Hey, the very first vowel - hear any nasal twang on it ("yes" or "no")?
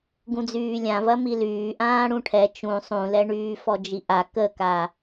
yes